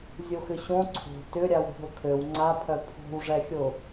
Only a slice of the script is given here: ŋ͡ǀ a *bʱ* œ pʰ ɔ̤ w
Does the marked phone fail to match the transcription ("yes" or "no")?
yes